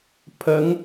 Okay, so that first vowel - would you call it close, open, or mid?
mid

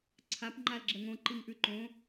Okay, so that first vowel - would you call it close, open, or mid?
open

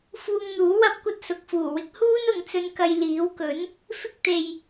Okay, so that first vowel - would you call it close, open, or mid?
close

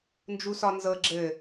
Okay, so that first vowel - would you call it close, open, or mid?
close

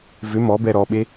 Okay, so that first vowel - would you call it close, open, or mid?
close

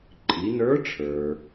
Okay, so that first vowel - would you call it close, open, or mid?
close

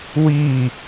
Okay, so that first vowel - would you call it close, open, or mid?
close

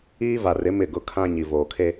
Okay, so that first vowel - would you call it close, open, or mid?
close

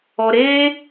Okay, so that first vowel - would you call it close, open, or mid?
mid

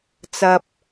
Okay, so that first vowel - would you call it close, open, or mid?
open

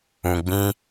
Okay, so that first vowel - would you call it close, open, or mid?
close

